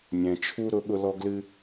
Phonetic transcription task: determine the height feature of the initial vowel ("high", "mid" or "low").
mid